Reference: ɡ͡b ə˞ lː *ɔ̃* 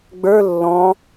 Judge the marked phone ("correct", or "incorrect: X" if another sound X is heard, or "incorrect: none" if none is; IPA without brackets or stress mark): correct